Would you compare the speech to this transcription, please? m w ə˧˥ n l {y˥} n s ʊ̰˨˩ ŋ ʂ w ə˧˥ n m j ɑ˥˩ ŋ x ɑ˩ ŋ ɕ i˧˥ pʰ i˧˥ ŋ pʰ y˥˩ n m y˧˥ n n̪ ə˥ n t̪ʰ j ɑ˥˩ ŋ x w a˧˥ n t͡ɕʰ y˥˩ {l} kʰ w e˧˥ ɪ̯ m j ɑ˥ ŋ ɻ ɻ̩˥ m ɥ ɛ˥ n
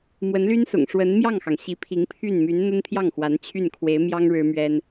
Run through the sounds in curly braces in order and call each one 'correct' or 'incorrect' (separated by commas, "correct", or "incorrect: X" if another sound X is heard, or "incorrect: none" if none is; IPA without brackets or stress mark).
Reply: correct, incorrect: n